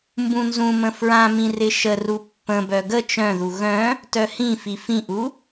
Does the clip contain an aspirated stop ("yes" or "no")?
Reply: no